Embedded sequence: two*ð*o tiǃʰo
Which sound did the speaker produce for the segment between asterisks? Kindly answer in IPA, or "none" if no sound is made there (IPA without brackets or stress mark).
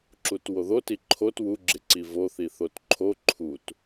ð